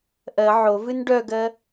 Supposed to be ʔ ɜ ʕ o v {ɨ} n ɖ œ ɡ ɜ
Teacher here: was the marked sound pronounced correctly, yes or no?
yes